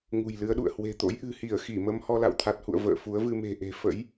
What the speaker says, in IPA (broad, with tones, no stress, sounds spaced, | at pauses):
ŋ ṳ˨˩ j l ɨ˨˦ ə̯ ɗ ṵ˧˨ ə̯ h w e̤˨˩ t̪ o̰˧˥ j ʔ ɨ̤˨˩ h i˧˩ ə̯ x i˧˩ m ə˧ m h ɔ˧ l a̰˧˨ w t̪ʰ a˨˩ t̚ h ṵ˧˨ ə̯ v ə̰ː˧˨ f u˨˦ ə̯ v ɨ˧ m e̤˨˩ ʔ e̤˨˩ f ə̰˧˥ j